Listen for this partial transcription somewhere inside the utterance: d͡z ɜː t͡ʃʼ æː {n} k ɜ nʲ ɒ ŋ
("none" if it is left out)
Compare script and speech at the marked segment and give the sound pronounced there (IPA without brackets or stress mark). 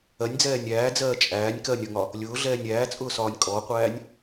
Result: nʲ